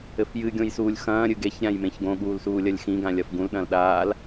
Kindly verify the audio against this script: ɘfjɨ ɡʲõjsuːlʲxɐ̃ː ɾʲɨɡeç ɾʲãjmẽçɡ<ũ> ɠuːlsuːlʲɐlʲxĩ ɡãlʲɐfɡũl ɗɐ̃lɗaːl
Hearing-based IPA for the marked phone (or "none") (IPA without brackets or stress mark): õ